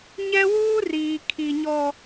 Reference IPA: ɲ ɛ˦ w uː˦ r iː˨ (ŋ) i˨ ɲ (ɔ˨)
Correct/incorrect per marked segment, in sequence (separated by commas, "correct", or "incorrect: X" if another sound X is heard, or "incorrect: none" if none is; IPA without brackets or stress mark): incorrect: kʰ, correct